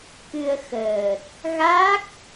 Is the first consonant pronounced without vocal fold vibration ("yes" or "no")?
yes